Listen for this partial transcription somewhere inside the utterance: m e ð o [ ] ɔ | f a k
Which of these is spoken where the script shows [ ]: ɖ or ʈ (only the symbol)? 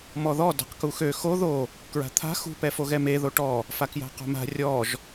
ʈ